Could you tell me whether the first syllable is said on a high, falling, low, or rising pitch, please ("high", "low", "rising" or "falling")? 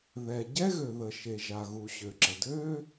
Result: low